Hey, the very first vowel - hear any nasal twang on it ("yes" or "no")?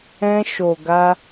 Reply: yes